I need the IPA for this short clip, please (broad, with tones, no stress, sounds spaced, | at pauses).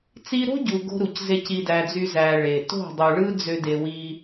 t͡s i˧ ɾ o̤˦ ɟ u˨ ɡ o̤˦ ɾ u˨ c z e˦ c i˧ d æ˧ d͡z y˦ z æ˧ ɭ e˨ t o̤˦˨ dˤ u˨ ɭ ɯ˦ d͡z ø˦ d e˧ w i˦